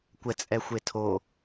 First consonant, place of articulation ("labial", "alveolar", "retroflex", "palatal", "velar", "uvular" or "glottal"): velar